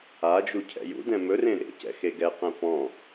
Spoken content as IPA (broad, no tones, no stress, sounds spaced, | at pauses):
a d͡ʒ u cʰ ɛ̰ j ṵ d ɛ̃ m ɵ r ẽ ɾ ḛ c ɛ̰ x e ɡ ɛ q ɛ̃ p ɔ̃